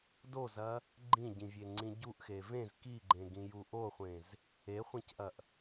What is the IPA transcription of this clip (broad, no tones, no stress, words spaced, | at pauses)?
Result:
dozɐ | ɡ͡ǃĩɟĩvʲeŋ͡ǀĩ ɟuʔxe vẽz kiɡ͡ǃẽɡĩju ʔoχʷẽz | eχʷẽcʔɐʔ